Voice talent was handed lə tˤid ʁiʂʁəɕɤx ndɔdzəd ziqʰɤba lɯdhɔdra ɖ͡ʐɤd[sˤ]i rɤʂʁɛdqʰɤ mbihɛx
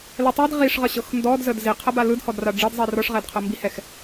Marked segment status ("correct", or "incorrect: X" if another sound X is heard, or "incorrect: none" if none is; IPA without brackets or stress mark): incorrect: zˤ